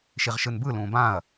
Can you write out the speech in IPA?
ʃ i ʁ ʃ ɯ n b ɯ l ũː b ãː ɐ̯

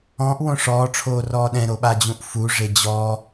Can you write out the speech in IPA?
ɔ̃ ʔ w õ ʂ ɔː ʈ͡ʂʰ oː r ɔː ɗ ɛ̃ ɾ o ɓ a d͡ʑ ũ ʔ f u ʐ e d͡ʑ ɔ

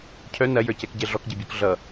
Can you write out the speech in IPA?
cʰ œ n ɐ j ə˞ c ɛ k ɟ ɛ ɮ ɔ k ɟ e bʲ ə˞ k ɮ ʌ

